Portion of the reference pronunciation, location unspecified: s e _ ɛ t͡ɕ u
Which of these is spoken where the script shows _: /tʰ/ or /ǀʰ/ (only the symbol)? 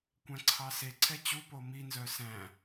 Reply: ǀʰ